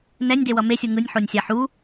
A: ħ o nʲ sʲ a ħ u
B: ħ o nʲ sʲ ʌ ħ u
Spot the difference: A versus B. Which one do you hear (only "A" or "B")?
A